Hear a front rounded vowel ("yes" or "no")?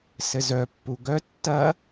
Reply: yes